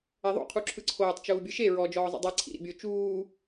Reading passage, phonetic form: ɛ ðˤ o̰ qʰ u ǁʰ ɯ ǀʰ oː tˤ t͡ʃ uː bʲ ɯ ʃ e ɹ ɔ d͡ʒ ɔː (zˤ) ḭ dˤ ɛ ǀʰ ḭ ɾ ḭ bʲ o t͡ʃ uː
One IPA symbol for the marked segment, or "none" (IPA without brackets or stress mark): zˤ